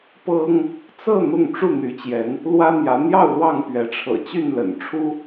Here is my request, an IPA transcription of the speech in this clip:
pɤ˦ŋ | t͡sɤ˥˨ n̪ʊ˥˨ŋ ʈ͡ʂu˥˨n̪y˨˦t͡ɕjɛ˨˦n | lwä˦ n̪jä˨˦n̪jɑ˥˨ʊ̯lwɑ˥˨ŋ pɥɛ˨˦ʈ͡ʂʰɤ̰˨˩t͡ɕy˥˨n lə̰˨˩nʈ͡ʂʰu˦

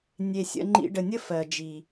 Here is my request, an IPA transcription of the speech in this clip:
nʲe˨ sʲə̰˧ ŋ͡ǃḭ˧ ɖə˨nʲə˦ fɜ˨d͡ʒi˨

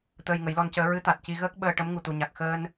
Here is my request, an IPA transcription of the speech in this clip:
t̪əː˧jŋə˨˩˦jlɔ˧ncəː˧˥ ɹɨ˧˥t̪a˨˩t̚ci˧ɣəː˦˥k̚ ɓəː˧ʈə˧˥m ŋu˨˩t̪u˨˩ɲa˨˩k̚ xəː˧n

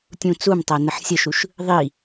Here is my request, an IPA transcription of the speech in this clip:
tʲũt͡sumtˤæ nəħsʲəʃuʃ | ðˤi

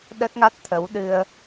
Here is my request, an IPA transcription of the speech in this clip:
ɗə˦˥t̚ŋa˦˥t̚t̪ʰə˨˦w ɗɨ˧ə̯

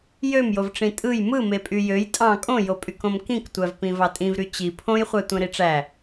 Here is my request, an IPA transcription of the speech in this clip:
jømjovʈ͡ʂĩ tʼɯj mɯme pʼyjøj tʼɑ̃ kʼõjopʼyk õmkĩktʷævpĩ vɑtʼĩvɾy t͡ɕi pʰõjχʷæ tʷẽɾiʈ͡ʂæ

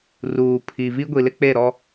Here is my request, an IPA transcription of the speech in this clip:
ruː˨pʰi˨ vi˦ɡʷi˨lɪ˦ k͡pe˦˨ ɾɔ˦

